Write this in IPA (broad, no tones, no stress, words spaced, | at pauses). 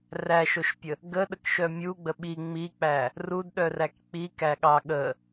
ræʃoʃpʲə | ɡəɗəkʃœ mʲuɡ͡bə ɓi ŋ͡mik͡pæ | rudɗœræk k͡pikæɠɑ ɠə